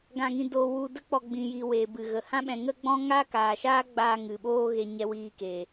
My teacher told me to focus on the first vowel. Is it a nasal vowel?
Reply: yes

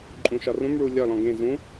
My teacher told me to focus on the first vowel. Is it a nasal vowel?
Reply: yes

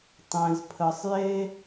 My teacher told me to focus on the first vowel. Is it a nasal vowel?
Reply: yes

